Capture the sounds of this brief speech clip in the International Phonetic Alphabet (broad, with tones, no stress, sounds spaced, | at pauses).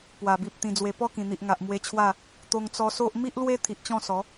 p w a˨˩ b i˨ p̚ t̪ ĩ˨˩ d͡z w e˨˩ p ɔ˥˧ k ĩ˨˩ n̪ i˨ ʔ ŋ a˨ ʔ m w e˧ t͡ɕʰ w a˥˧ | t̪ o˧ ŋ t͡s ɔ˧ s o˦ ʔ m i˦ ʔ l w e˦ t̪ʰ i˨ ʔ t͡ɕ ɔ̃˥˧ s ɔ˨˦